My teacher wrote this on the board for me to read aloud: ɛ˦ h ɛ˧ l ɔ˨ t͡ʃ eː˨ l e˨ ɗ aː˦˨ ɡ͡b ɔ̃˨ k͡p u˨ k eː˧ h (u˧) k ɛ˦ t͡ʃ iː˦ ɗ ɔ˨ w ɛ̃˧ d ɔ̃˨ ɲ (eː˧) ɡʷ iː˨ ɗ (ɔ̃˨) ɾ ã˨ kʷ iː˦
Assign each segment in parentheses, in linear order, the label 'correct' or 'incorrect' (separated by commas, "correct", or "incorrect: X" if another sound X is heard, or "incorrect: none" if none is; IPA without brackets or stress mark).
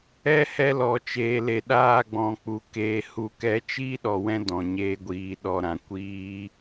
correct, correct, incorrect: ɔ˨